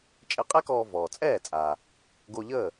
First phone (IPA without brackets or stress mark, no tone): t͡ʃʼ